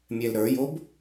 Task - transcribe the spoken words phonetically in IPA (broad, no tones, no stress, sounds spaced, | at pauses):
mʲ ɛ l ɾ ə˞ j o b